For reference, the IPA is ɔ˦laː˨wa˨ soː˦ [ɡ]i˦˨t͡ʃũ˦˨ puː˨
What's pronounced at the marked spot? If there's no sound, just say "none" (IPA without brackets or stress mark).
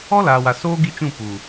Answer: ɡ